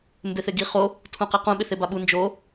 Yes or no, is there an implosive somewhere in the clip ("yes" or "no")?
yes